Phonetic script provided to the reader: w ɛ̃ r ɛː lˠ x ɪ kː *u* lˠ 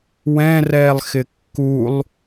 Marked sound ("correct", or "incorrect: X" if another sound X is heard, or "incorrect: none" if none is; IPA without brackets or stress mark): correct